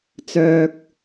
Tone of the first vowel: low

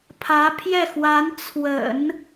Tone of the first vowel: rising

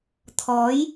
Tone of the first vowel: rising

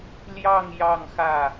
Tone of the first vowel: falling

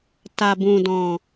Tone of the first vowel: low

